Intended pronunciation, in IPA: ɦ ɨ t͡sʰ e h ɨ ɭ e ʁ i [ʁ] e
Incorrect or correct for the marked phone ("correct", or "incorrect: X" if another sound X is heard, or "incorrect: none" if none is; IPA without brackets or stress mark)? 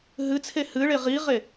correct